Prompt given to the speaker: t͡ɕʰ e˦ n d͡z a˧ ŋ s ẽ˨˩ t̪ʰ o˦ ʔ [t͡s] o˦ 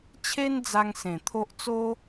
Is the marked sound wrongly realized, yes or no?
no